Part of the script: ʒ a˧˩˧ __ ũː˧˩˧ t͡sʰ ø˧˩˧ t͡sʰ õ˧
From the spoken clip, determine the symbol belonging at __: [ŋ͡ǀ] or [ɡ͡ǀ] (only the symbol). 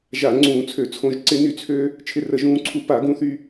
ŋ͡ǀ